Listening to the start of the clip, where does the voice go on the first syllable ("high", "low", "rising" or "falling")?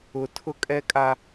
high